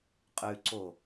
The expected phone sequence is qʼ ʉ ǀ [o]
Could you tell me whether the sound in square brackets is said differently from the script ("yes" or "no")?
no